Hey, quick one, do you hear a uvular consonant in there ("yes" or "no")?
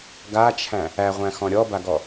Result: yes